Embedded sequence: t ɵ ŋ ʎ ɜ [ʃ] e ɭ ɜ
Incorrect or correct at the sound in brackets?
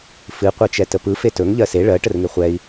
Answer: incorrect: s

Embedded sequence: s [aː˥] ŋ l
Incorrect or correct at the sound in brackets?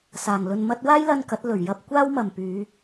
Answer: incorrect: aː˨˩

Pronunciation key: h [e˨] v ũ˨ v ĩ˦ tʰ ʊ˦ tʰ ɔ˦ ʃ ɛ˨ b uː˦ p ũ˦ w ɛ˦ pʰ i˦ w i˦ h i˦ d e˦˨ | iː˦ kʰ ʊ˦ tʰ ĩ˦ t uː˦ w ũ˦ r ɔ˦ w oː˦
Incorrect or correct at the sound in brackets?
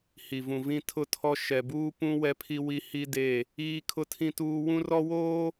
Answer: incorrect: i˨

